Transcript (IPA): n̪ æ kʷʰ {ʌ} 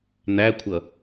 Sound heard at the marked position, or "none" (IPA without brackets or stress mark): ʌ